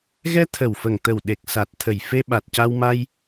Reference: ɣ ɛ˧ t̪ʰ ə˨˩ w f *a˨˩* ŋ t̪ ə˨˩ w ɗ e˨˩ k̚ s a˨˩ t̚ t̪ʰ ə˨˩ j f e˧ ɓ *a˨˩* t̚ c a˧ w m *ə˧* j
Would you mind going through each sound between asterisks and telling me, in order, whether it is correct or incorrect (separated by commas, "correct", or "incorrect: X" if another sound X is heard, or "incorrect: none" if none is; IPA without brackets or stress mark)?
incorrect: ə˨˩, correct, incorrect: a˧